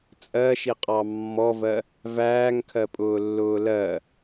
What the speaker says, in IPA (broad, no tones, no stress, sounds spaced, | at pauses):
t͡sʼ ɜ ʃ i qʼ ɑ mː ɔ v ɜ | v æː ŋ kʰ ɜ pʼ ʊː lː ʊː l ɜ